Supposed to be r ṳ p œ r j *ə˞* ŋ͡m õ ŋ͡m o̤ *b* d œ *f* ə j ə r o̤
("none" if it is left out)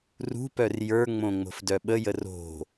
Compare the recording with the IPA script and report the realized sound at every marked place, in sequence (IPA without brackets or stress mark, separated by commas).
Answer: ə˞, f, ɓ